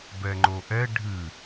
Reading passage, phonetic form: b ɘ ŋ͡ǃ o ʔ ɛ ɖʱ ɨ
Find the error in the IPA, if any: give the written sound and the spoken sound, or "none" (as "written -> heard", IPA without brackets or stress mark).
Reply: ɘ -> ɛ